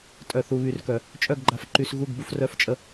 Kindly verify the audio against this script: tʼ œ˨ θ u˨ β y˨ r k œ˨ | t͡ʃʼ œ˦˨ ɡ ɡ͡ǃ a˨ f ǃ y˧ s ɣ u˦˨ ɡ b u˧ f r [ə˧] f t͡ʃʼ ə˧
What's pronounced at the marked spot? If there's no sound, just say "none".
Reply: œ˧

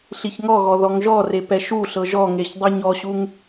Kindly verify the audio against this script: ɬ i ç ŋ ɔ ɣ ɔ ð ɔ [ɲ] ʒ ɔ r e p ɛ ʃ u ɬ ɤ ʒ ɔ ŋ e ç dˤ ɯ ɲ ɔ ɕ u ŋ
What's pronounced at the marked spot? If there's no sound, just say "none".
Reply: ŋ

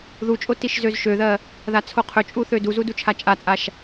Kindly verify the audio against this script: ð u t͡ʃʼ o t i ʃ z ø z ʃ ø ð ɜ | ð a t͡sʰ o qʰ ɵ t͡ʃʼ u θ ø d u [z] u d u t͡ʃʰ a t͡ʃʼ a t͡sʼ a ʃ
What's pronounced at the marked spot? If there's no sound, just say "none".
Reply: z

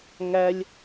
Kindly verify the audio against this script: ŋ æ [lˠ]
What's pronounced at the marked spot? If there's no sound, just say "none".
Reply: lʲ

